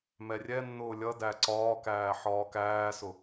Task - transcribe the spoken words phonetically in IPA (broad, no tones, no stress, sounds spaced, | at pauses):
m ɛ rʲ ɛ nː ʊː lʲ ʌ d æ ǀ ɒː k æː ħ ɒː k æː s ʊ